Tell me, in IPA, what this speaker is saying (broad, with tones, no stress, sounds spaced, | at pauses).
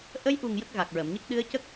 ʔ ə˧˥ j ʔ u˨˩ ŋ j ə˦˥ k̚ ɣ a˨˩ k̚ ɹ ə˨˩˨ m ɲ ə˦˥ k̚ ɗ ɨ˧˥ ə̯ c ə˦˥ k̚